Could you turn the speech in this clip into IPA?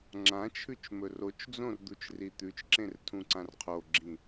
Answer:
ŋ͡ǁãt͡ʃʰʉt͡ʃmɵr ot͡ʃd͡zõrd̪ut͡ʃri t̪ʉt͡ʃǁẽrtʰũǀãr qʰoɡ͡ǁĩ

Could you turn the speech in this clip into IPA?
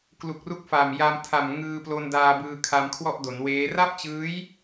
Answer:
klu˨˩k̚ru˦˥k̚fa˨˩mja˧m tʰa˨˩m ŋɯː˧plo˧ndaː˧bɯː˧ kʰa˧mkʰwɔ˥˩ʔdo˩˦nweː˦˥ ra˥˩p̚t͡ɕɯː˦˥j

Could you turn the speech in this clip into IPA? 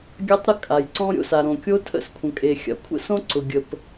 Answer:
ɡʲa˥tˤɾə˥ kʼa˩jǀɔ̃˥ ɾʲo̰˥sa˩ ɾõ˩kʲo˥ tʰə̰˥skʷʰə̃˩kʼe˩ xʲa̰˩ kʷʰə̰˥sõ˥ ǀʊ˩ɡʲə˩p

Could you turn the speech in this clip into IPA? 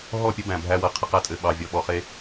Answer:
ɦɔ˦˨pʲə˦ bæ̃˨ bʱæ˦wɤ˨qʰɘ˦ qæ˦tʼɘ˨ ɓɑ˨vʲɔ˨ ɓɔ˨χe˦

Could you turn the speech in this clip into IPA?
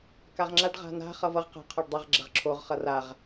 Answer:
kaʁŋ͡ǁaɖ ʁa̤na̤ χʌvʌʁ qa̤ qʰɔɖdˤɐʁ ɡ͡ǁɐʁǁʰoʁ χʌraʁ

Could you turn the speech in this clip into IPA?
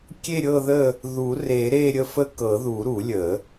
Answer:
kʲe˦˨ɾʲɤ˦˨ðə˦˨ | ðu˨˩˦ re˨˩˦ɾe˦˨ɾʲə˦˨fə˦˨ kɤ˨˩˦ðu˨˩˦ ɾu˨˩˦lʲə˨˩˦

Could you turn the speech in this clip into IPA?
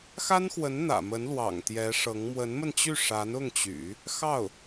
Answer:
xa˥nxwə˧˥n n̪ä̰˨˩mə˧˥nlwɑ̰˨˩ŋ t̪jɛ˧˥ʂɤ˧˥ŋ mwə˧˥nmə˧nt͡ɕy˥˩ ʂa˧˥nʊ˥˩ŋt͡ɕy̰˨˩˦ | xɑ˥˩ʊ̯

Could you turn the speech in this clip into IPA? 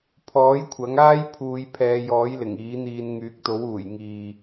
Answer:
pʰɔː˨˥jkʷʰɐ˨˥ŋaː˥jpʰuː˨˧j pʰɛː˨˧jɔː˨˥jlɪ˨˩ŋ iː˨˥n̪iː˧n ŋyː˨˥k̚t̪o˨˥w uː˨˩jŋiː˨

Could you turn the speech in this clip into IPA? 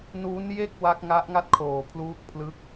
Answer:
nuː˦˥nje˥˩k̚ wa˦˥k̚ŋa˦˥ʔŋa˥˩t̚ kʰoː˨˩pʰluː˦˥k̚pʰlɯ˦˥k̚

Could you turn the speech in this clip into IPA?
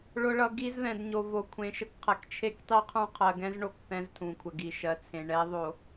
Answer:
ɭʊ˨ɭʌ˨ ɡi˦zðɛ̃˨dɲo˨ vo˨kʷʰẽ˨ ʃə˦kqʰɛ˨k t͡ʃʰe˦ktˤi˦qʰũ˦ qʰɜ˨ɡɛ̃˦zɳo˨k θɛ̃˦ztʰũ˨kʷʰə˨ ɡi˨ʃɜ˨t͡sʰẽ˨ ɳɛ˨˦ðˤo˨

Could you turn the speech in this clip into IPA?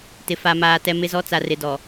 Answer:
tɪ˨fa˨maː˨tɛ˨ mɪ˨zɔ˨ t͡sa˨rɪ˨dɔ˨

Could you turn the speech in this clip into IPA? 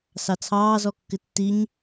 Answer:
sɑt͡sʰɑːzɔkːɪ tːiɲ

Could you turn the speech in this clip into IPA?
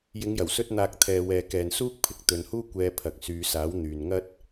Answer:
jɪ˨˧ŋjɐ˨˩wsɵ˧t̚n̪aː˨k̚ t̪ʰɛː˨wɛː˨kɛː˨nsuː˥k̚ pʰɪ˧k̚t̪ɵ˨nhuː˥ kʷɛː˧pʰɐ˨k̚ syː˨˧saː˨˥w n̪yː˨nŋɐ˥t̚

